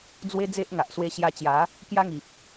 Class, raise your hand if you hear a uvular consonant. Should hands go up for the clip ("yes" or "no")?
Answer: no